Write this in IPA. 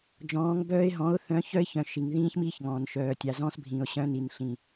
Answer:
d͡ʒ ɔ̃ː˨˦ ŋ b œː˦ ɪ̯ ɦ ɔ̃˨˦ ʊ̯ θ œ̃˨˦ ç œ˦ ɪ̯ ç œ̃˨ ʃ i˨ ŋ ð ĩː˦ ç m iː˦ ç ŋ ɔ̃ː˨ n ʃ œː˨ tʲ a˨ z ɔ̃ː˦ s bʱ ĩ˨ ʊ̯ ɕ œ̃˦ n i˨ n ɬ ĩ˨

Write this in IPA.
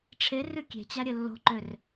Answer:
ʈ͡ʂʰ e r ʉ kʲ e̤ t͡ɕ a ɾʲ ɘ lː o̤ ǃ ø r

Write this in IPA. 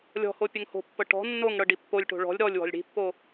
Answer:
lʲ ɔ̤ h o pʲ ɘ ŋ h o̤ pː ɤ ʈ ɔ̤ nː o ŋ ɽ ɤ ɖ i pː o lʲ ʈ o̤ ɭ ɔ̤ lʲ ɾ ɔ lʲ w ɔ̤ lʲ ɽ i̤ pː o

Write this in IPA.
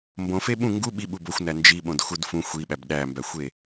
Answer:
m b õ f e ɓ ũ ŋ ɡ u ɓ i ɓ u b o xʷ n æ n d͡ʒ i ɓ õ d x u d f ũ xʷ i ɓ æ b ɗ æ m b æ xʷ e

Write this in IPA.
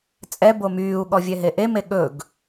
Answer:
t͡sʼ ɛ b o m yː u̯ ɠ ɔ vʲ ɛ ɦ e ʔ e m e ɠ ɵ ɡ

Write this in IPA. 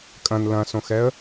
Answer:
kʼ ɐ̃ n l ɐ̃ s õ x ɛ ə̯

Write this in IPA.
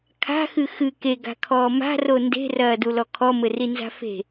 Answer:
kʰ a̤ x ɨ x ɨ k e ɡ a̤ kʰ ɔː m a̤ r o n d e̤ r ɐː d u l ɔ kʰ ɔ m ɘ r i n z a̤ f e̤

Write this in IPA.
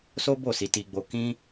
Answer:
s o˦ b o˦˨ s i˧ t i˧ ɡ͡b o˧ k ĩ˦

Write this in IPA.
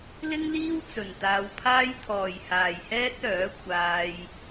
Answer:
l ɪ˥ ŋ l iː˥ w t͡s ɵ˨ n t̪ aː˧ w pʰ aː˥ j t̪ʰ ɔː˨ j h aː˨ j h ɛː˥ t̚ œː˨˥ kʷʰ aː˧ j

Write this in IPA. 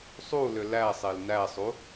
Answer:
sˤ u l ʏ l æ sˤ e l n æ sˤ u

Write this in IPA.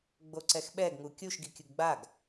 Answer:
ɡ͡b o ǀ ɛ x ɓ ɛ ɡ ŋ u kʲ u ʃ ɡ i kʲ ʊ ɡ ɡ͡b a ɡ

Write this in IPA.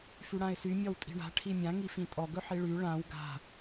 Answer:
f y ɽ ã ɪ̯ s y mʲ ɔ w tʼ i̤ ɳ a̤ ʈʰ i mʲ ã ŋ i f ĩ tʼ ɔ ɡ ɵ ħ i ɭ y ɭ ã w ɡ a̤

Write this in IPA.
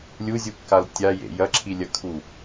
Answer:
lʲ u zʲ u kː a l tʲ a j ḛ j ɐ ǁʰ i lʲ ɐ kʰ u

